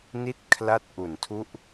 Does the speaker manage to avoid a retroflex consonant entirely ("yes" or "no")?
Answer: yes